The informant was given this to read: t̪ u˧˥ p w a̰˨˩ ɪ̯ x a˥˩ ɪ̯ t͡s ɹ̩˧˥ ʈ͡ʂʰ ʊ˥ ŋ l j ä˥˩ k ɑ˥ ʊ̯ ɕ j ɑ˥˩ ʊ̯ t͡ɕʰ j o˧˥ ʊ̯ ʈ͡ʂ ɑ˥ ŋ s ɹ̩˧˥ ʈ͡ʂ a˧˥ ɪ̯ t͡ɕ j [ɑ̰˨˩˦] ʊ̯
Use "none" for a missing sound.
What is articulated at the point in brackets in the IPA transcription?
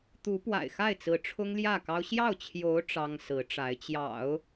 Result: ɑ̰˨˩˦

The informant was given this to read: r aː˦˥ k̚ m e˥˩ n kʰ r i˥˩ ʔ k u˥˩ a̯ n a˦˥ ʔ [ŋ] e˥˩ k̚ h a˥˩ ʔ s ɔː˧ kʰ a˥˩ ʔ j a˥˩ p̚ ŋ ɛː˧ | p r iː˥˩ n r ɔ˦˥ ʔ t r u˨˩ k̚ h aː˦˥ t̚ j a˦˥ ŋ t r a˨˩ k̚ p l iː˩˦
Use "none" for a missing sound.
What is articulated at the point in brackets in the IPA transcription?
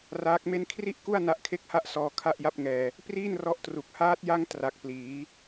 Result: kʰ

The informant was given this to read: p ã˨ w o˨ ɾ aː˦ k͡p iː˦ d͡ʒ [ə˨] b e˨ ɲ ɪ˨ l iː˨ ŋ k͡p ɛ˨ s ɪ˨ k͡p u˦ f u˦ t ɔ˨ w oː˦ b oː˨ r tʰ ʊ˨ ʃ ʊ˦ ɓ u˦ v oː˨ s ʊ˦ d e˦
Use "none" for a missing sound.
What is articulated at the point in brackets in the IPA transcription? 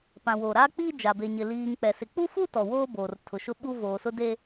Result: a˨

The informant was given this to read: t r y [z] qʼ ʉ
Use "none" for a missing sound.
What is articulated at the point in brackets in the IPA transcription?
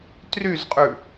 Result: z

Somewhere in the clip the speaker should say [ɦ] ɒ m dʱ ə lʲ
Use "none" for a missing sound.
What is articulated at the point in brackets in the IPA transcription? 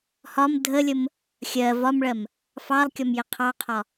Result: h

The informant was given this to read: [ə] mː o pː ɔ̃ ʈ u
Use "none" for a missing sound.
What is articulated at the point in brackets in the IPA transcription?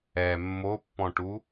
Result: ɛ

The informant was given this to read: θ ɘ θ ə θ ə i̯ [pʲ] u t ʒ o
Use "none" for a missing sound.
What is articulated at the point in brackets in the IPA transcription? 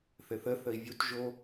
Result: vʲ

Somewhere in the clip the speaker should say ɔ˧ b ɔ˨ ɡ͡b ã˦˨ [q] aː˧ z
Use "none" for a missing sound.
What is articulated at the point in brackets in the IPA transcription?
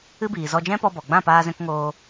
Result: p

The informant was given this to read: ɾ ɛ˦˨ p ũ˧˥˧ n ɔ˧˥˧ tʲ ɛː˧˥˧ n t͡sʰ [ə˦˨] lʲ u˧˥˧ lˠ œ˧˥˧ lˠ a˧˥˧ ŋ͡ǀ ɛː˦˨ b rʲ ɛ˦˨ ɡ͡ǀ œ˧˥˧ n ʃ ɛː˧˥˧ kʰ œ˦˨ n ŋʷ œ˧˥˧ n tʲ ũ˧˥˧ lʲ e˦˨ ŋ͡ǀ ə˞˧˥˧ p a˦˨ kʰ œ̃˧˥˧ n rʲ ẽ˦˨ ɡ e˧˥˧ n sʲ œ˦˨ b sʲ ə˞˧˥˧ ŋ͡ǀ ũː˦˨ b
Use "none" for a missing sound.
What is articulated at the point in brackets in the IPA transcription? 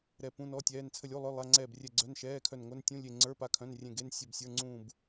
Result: ə˦˨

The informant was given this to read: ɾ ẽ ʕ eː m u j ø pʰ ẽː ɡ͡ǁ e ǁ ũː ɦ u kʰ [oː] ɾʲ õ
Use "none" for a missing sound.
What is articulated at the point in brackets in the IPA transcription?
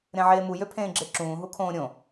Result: õː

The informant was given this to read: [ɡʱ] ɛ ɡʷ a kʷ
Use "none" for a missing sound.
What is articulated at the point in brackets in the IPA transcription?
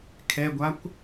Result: kʰ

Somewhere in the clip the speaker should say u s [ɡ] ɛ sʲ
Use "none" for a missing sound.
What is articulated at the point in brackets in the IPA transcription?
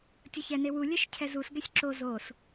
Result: ɡ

